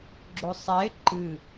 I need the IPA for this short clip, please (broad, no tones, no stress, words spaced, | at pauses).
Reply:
ɡ͡ǁosˤɛe̯ ǃɨ